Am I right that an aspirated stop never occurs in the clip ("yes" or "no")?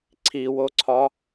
no